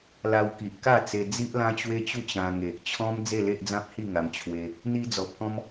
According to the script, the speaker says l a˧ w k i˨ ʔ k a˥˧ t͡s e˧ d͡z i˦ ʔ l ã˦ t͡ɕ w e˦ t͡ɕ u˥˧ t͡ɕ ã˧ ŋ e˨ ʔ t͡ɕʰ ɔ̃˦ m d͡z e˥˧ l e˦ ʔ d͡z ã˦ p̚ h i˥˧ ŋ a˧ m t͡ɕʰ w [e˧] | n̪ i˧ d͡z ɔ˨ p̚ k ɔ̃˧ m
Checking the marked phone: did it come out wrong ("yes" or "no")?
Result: no